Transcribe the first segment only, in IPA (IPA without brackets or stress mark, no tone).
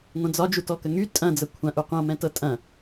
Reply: ŋʷ